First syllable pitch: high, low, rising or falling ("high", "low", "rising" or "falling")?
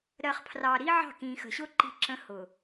low